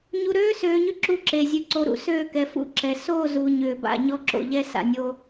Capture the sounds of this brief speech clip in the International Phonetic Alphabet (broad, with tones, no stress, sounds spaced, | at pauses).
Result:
ɲ u˨ ɾ øː˦ s øː˨ ɲ ʏ˦ ǁ u˦ ǁ e˨ zʲ ʉ˨ ǀ o˨ ɾ ṵ˨ s øː˦˨ k ɛ˨ f ṵ˦˨ ǁ ɛ˨ s o˦˨ z u˨ ɲ ʏː˨ b a̰˦˨ ɲ ɔ˦ ǁ o̰˨ ʎ ɛ˦ s a̰˨ nʲ o˦